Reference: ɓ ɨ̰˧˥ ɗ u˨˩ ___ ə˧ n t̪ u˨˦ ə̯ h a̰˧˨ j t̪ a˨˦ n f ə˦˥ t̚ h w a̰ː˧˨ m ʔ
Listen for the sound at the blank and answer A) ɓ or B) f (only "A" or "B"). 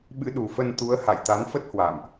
B